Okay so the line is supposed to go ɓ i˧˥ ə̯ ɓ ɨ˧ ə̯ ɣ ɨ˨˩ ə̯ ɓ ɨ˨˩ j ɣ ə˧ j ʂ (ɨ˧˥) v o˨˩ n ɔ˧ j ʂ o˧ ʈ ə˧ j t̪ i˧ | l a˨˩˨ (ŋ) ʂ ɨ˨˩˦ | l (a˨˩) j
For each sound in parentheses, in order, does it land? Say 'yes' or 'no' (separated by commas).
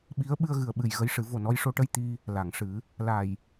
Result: no, yes, yes